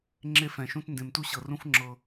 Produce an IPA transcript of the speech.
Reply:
ŋ͡ǁ e˦ f ɛ̃˨ ʃ ũ˦ t n d ẽ˨ m t u˦ ɕ ɤ˨ r ũ˦ f ŋ͡ǁ ɤ˦

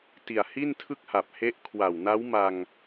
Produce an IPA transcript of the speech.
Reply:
t i˨˩ a̯ h i˥˩ n tʰ ɯ˥˩ k̚ h a˨˩ p̚ h e˦˥ ʔ kʰ w a˨˩ w n a˦˥ w m a˧ ŋ

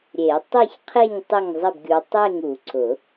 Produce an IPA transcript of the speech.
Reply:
ɾʲ e˨˩˦ tˤ ɪ˥˨ ç qʰ e˥˨ ɲ tˤ ɪ˥˨ ŋ zˤ ɪ˥˨ b ɡʲ u˨˦ tˤ e˥˨ ŋ u˨˩˦ ǀ ʊ˨˩˦

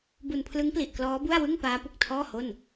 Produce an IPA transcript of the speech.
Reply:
b u˧ n pʰ l ɯ˦˥ ŋ p l i˨˩ ʔ k l ɔː˦˥ b u˥˩ a̯ w ɯ˥˩ ŋ p aː˦˥ p u˨˩ k̚ tʰ ɔː˥˩ h o˥˩ n

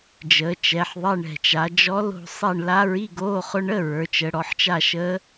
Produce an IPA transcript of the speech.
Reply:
d͡ʒ əː˩˧ t͡ʃ ɛ˩˧ ħ ðˤ ɛ˧˥˧ ɳ ɛ̤˨˩ t͡ʃ a˩˧ d͡ʒ ɔ˧˥ l o̤˦˨ sˤ ɛ˦˨ ɳ l a˧˥ ɹ i˧˥˧ ɡ oː˧˥˧ χ ʊ˧˥ ɳ ə˧˥˧ ɹ ə˞˩˧ t͡ʃ ə˩˧ ɽ ɔ˩˧ ħ t͡ʃ a˦˨ ʃ əː˧˥

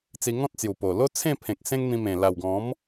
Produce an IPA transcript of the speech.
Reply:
t͡s i˧ ŋ ɔ̃˦ t̚ t͡s j u˨˩ p o˨˩ l o˦ t͡sʰ ẽ˥˧ pʰ ẽ˨ k̚ s ẽ˦ ŋ n̪ ĩ˧ m ẽ˨˩ l a˨˩ w ɡ ɔ̃˨˦ m

